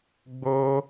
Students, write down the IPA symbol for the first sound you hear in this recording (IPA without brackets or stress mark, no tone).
ɡ͡b